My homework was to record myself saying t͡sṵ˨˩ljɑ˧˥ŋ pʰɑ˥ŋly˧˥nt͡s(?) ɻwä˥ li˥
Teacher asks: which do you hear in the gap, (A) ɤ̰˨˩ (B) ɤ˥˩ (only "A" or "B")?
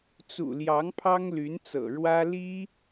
A